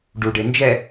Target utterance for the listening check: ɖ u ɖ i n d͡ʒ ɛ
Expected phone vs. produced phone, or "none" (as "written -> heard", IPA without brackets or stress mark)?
i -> e